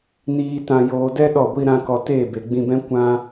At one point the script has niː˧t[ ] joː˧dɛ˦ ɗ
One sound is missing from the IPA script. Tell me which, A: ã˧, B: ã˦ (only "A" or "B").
A